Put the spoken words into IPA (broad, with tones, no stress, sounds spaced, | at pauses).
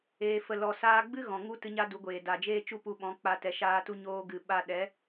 eː˧ f ə˧ l ɔ˨ s aː˧ ɡ͡b ɨ˦ ɣ ɔ̃˨ ŋ u˦ t ɨ˧ ɲ a˦ d u˨˦ ɡʷ eː˨ d a˨ d͡ʒ eː˦ t͡ʃ u˦˨ p u˧ ɓ ɔ̃˨˦ k͡p a˧ t ɛ˨ ʃ aː˧ t u˧ ɲ oː˧ ɡ ɨ˨ ɓ a˧ ɗ ɛ˨˦